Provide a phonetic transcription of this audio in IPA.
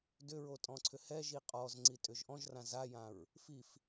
dʏɹotʼɔ̃ǀʰʏ hɛʒi qʼɔzŋ͡ǀitʼʏʒ ʔɔ̃ʒrã zajãɹ | fif

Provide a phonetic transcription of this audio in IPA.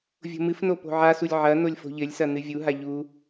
vʲo̤mɨfno po̤ʕasulʲ ʕɐ nolʲfo̤ʎɘlʲsɐ nɨvʲuɦa ʎu

